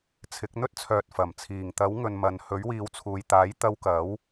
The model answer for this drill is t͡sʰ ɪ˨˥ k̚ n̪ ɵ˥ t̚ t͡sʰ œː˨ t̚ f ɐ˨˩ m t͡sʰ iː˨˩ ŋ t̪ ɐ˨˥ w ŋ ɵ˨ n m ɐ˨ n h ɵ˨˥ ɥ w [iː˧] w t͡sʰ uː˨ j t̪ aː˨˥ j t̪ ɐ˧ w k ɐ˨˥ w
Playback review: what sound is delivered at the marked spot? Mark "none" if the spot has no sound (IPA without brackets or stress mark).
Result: iː˨˧